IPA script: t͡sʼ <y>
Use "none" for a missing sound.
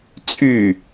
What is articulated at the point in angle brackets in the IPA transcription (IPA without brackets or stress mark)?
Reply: y